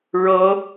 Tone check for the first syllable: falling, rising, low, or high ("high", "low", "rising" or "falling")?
high